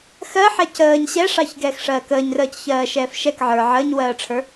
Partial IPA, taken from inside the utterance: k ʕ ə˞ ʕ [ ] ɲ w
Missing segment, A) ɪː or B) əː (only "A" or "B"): B